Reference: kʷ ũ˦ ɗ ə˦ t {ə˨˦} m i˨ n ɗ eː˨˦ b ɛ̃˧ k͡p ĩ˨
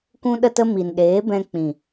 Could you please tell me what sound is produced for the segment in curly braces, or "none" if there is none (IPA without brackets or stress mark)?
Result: ə˦